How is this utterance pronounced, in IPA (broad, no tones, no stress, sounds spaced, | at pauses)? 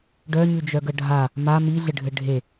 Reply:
ɖ œ ɲ ʉ d͡ʒ œ ɡ ə ɖʱ a | m a m i ɮ ɘ ɖʱ ɘ ɖʱ e